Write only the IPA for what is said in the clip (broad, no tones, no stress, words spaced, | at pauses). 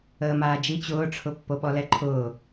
əːmaːd͡ʒi t͡ɕʊːʈ͡ʂʰʊ pːoɓɔlɛǃʰʊː